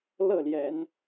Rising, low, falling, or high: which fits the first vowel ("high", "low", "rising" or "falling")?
falling